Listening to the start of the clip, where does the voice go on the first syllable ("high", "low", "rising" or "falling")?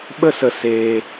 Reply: high